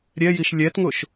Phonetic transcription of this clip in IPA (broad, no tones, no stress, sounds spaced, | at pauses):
ɾʲ ɛ j i ʃ lʲ ɛ t ŋ ʊ ʃ